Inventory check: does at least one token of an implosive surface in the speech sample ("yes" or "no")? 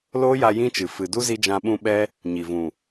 yes